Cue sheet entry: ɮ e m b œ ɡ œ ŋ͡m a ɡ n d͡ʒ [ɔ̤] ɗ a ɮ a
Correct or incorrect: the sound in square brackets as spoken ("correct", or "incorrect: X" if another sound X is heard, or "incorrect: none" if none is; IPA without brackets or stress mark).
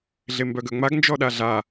incorrect: ɔ